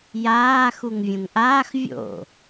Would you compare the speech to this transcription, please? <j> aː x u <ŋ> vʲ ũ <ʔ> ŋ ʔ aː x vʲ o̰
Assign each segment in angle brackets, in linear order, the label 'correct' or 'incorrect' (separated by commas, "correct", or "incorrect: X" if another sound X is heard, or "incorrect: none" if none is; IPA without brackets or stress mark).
correct, correct, incorrect: none